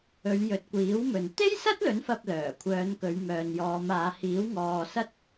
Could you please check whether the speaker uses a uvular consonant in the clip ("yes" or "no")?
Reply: no